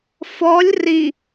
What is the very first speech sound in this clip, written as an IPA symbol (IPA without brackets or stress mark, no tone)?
f